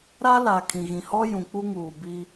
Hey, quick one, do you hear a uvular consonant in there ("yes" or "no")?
no